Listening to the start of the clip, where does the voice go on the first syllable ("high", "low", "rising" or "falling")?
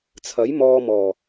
rising